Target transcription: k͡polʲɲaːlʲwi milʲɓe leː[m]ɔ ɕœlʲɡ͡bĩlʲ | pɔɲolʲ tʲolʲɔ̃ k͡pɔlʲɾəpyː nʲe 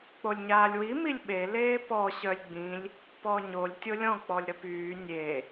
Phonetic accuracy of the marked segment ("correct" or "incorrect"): incorrect